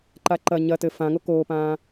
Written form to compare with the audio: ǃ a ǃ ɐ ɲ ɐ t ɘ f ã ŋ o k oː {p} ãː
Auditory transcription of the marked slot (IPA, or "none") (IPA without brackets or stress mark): p